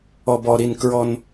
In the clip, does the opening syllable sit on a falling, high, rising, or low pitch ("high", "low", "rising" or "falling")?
low